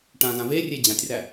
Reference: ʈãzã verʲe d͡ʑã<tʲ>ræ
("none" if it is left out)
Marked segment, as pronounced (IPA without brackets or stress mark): tʲ